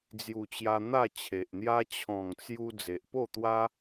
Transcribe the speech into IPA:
d͡z j u˨˩ t͡ɕ j a˧ n̪ a˥˧ t͡ɕʰ e˨ ʔ n̪ j a˦ t͡ɕʰ ɔ̃˨˩ ŋ t͡s j u˧ d͡z e˨ ʔ p o˥˧ t̪ w a˦

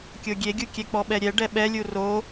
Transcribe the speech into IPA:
kʲ o ɡʲ e ɡʲ u kʲ ɛ k͡p ɔ ɓ ɛ ɾʲ ɛ ɖ ɛ ɓ ɛ lʲ u r o

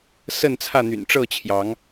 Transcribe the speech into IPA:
s ə˥˨ n t͡sʰ ä˥˨ n̪ y̰˨˩ n ʈ͡ʂ ɤ˥˨ t͡ɕʰ j ɑ˨˦ ŋ

